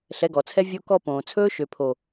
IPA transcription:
ɬ ɛ˨˦ ɡ ɔ˨ t͡sʰ ɛ˦ vʲ o˧ k ɔ˧ p õː˨ t͡sʰ ɵː˦ ʃ ø˨ pʰ o˨

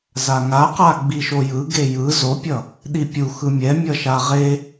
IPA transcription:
z a ŋ a q a ɡ͡b i ʃ o j ɯ ɡ e j ɯ z o pʲ ʌ | ɗ i pʲ u x ɯ mʲ ɛ mʲ ʌ ʃ a ʁ e

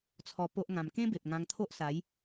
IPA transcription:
t͡sʰ ɔ˧ p o˦ ʔ ŋ ã˧ m k ẽ˦ b e˨ p̚ ŋ ã˧ ŋ t̪ʰ o˦ ʔ s a˨˦ j

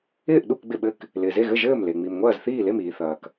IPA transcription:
ɪː˥˨ ʔ ɗ u˥˨ k ɡ͡b ɪ˥˨ ɓ ɘ˥˨ k | l ɪː˨ z e˥˨ ɣ ɘ˥˨ ʒ ɘː˥˨ m l e˨ ŋ͡m i˨ m ŋʷ ɐː˥˨ z θ iː˥˨ l e˥˨ m iː˨ θ ɐː˨ k

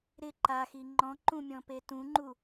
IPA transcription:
ɾ ɪ ǃ a x i ŋ͡ǃ ɔ̃ ǃ ũ mʲ ɔ̃ p e t ũ ŋ͡ǃ u

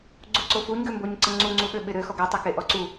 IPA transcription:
ɡ͡ǀ u ǀ o f u ɲ ɡ ø m b o ɲ ǀ ə ŋ͡ǀ u ŋ͡ǀ u ɓ ø ɓ ɪ ɾ ø x ɔ ɡ ɛ tˤ ɛ k e ʔ ɔ ǀ u

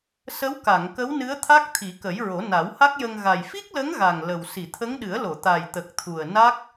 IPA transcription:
s ə˧˥ w k a˨˩˨ ŋ k ə˧˥ w n ɨ˧˥ ə̯ t̪ʰ a˦˥ k̚ t̪ʰ i˨˩˦ k ə˨˩˦ j ɹ o˨˩˦ n a˨˩˦ w h a˦˥ k̚ j ə˧ ŋ ɣ a˨˩ j f i˦˥ k̚ l ə˧˥ ŋ ɣ a˨˩ ŋ l ə˨˩ w s i˨˩˨ t̪ʰ ə˧˥ ŋ ɗ ɨ˨˩˦ ə̯ l o˨˩˨ t̪ a˨˩ j t̪ ə˨˩ k̚ t̪ʰ u˨˩ ə̯ n a˦˥ k̚

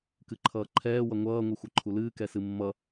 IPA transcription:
k ɨ ǃʰ ʌː ǃʰ ɛː w ʌ ŋʷ ʌː ŋʷ ɨ xʷ ʌ ǃʰ u l ɨː k ɛ s ɨ mː ʌ

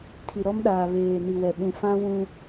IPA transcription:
tʰ i˨ ɾ ɔ˦ m ɗ aː˨ β eː˨ n i˨ w ɛ˨ ɓ ũ˨ f ã˦ w ũ˦

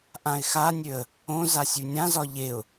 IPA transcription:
ʔ ã ɪ̯ x a nʲ ø ə̯ | õ z a sʲ ʉ nʲ ã z ɒ ʎ e ʊ̯

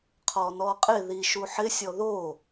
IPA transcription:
qʰ ɔ n ɔ qʼ ɪ ð i ʃ u ħ ɪ sʲ ɔ ð o

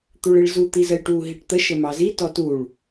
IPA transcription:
t̪ u ɭ i ɭ z u t̪ i z ə j ʈ u ɦ i ʈ t̪ ə ʃ ə m ɑ z i t ɔ t u ɭ

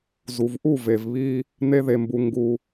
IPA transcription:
z u˨ v ʔ u˦˨ v e˨ v β i˧ | n̪ e˦ ð e˧ m b u˧ ŋ ɡ u˧

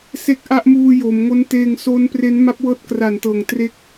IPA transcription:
s e˦˥ k̚ ʔ a˦˥ ʔ m uː˧ j o˩˦ m ŋ o˦˥ n t eː˧ ŋ s o˦˥ n p r e˦˥ n m a˦˥ p̚ w ɤː˦˥ t̚ k r a˨˩ n t ɤː˨˩ ŋ t r e˦˥ k̚

